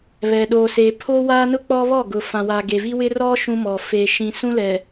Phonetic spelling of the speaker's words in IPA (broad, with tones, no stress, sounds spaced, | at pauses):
β ɛ˨ ɗ oː˨ s eː˨ pʰ oː˦ w aː˦ n ʊ˦ k͡p ɔ˦ β ɔ˦˨ ɡ ʊ˨ f ã˨ w aː˨ ɡ e˨ v i˦ w ɪ˦ r ɔ˦ ʃ ũ˦ m ɔ˨ f e˨ ʃ ĩ˨ s ũ˦ l ɛ˨